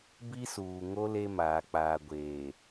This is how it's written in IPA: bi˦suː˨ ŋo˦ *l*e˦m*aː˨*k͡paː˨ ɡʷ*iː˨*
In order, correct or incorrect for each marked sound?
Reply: correct, correct, incorrect: eː˨

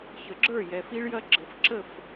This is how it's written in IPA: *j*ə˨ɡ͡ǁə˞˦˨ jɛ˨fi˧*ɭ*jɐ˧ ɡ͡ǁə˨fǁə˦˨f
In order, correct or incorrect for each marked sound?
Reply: incorrect: ç, correct

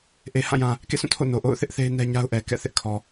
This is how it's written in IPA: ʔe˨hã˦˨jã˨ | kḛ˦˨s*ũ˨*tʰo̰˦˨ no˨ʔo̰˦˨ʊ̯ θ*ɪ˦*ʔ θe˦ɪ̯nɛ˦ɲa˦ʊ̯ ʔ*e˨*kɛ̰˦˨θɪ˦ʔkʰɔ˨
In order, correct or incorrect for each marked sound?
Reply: incorrect: ũ˦˨, correct, incorrect: ɛ˨

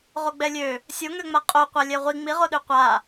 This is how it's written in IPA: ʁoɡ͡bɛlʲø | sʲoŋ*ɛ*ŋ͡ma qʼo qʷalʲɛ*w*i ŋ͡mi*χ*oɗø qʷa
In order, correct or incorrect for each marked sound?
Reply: incorrect: ø, incorrect: ʁʷ, incorrect: ʁ

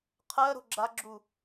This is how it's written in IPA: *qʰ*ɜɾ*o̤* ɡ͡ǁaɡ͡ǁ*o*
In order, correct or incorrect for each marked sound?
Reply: correct, correct, incorrect: u

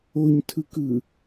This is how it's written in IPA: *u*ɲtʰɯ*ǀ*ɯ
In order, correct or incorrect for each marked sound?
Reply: incorrect: o, incorrect: k

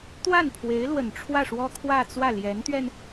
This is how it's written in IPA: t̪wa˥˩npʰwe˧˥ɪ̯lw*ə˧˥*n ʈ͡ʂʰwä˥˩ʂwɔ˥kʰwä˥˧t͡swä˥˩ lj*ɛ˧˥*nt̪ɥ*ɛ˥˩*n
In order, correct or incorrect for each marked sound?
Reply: incorrect: ə˨˩, correct, incorrect: ɛ˧

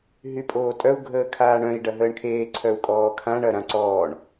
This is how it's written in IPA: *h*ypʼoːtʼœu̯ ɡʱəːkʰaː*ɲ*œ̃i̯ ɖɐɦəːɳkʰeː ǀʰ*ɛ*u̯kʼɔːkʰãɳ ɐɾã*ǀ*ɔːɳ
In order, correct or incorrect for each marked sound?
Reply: incorrect: ɦ, incorrect: ɳ, incorrect: œ, correct

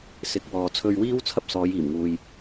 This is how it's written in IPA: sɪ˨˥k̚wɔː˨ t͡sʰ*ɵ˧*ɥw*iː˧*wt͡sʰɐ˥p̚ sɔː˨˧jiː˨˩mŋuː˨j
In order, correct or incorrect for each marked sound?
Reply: correct, incorrect: iː˥

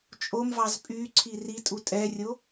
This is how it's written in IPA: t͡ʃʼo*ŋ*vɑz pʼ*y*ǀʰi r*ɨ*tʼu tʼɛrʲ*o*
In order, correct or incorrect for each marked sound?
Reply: incorrect: m, correct, incorrect: i, correct

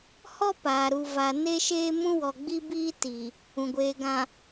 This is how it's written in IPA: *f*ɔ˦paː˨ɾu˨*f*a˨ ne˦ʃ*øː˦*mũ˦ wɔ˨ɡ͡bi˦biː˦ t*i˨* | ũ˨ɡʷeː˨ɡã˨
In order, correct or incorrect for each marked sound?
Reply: incorrect: h, incorrect: v, incorrect: eː˦, correct

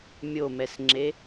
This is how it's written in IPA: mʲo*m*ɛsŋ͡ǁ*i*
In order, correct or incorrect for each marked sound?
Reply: correct, incorrect: e

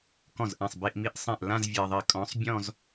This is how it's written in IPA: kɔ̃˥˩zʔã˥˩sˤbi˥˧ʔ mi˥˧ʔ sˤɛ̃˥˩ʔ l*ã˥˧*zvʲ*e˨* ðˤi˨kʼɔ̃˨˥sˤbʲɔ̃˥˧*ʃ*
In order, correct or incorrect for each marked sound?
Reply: correct, correct, incorrect: z

